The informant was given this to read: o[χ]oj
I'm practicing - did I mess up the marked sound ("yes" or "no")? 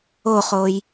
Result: no